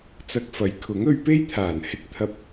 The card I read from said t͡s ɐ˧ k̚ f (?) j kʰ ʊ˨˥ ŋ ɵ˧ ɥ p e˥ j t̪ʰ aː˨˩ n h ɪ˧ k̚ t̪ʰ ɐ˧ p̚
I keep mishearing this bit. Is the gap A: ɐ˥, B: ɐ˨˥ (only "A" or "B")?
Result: B